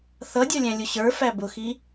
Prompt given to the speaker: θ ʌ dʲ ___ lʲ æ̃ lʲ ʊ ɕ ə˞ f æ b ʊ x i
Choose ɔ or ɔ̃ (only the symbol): ɔ